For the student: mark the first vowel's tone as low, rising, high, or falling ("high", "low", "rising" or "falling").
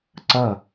falling